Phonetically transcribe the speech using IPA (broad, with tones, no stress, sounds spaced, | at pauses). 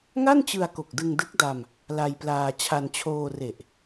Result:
ŋ a˥˩ n t͡ɕ ɯ˧ a̯ k o˨˩ k̚ d ɯ˧ ŋ d ɯ˦˥ k̚ d a˧ m | l a˧ j p l aː˧ t͡ɕʰ a˧ n t͡ɕʰ oː˧ r e˨˩ ʔ